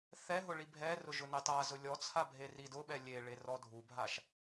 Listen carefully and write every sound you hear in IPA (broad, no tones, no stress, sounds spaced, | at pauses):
θ ɛ ɦ ʊ ɭ i bʱ ɛ r ʊ ʒ ʊ n e tˤ a z ʊ lʲ ɔ t͡sʰ a bʱ e r i d ʊ ɓ ɛ lʲ e ɭ e r ɔ dʱ u bʱ a ʃ